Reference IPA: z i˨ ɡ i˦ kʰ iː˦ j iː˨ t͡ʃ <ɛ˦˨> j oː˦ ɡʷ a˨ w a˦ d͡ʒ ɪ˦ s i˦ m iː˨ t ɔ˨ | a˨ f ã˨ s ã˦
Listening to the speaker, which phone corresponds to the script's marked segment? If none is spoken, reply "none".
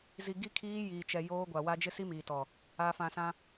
ɛ˨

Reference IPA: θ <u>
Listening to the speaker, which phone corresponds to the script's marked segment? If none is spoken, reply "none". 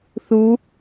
u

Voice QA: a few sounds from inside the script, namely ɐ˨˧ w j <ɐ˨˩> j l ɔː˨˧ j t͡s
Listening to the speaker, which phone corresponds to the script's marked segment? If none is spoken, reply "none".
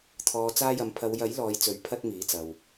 ɐ˨˥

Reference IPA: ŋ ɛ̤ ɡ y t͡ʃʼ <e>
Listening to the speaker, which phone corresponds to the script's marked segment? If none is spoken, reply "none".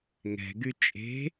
e̤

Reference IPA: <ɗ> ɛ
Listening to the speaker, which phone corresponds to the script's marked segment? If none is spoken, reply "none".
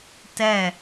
t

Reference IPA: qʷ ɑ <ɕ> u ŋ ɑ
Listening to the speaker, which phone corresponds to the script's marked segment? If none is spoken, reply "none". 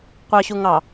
ɕ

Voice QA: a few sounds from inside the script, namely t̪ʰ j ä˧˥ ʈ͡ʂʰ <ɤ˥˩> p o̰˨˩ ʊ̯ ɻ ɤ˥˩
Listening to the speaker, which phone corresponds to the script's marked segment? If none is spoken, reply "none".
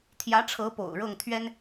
ɤ˧˥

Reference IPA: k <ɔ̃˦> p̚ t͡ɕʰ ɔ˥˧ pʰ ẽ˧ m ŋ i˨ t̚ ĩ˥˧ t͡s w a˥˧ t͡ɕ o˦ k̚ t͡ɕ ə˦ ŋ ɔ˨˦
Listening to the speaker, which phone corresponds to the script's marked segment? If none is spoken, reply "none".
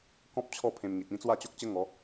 ɔ̃˦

